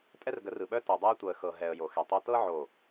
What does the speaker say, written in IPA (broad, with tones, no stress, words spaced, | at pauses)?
tʼɛ˦rɡə˨˦rɯ˨ɓœ˦ to˨dˤɤ˦ə̯tʷɤ˨ə̯ xɤ˨ɦɛ˨ə̯ jo˨xɛ˨tˤo˦ tɤ˦ʕo˨